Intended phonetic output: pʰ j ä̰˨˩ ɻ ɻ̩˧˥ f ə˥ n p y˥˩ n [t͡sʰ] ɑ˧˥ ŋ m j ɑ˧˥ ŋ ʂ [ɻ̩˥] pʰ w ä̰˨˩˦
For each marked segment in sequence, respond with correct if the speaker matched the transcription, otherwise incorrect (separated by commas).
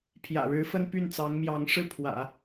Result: incorrect, incorrect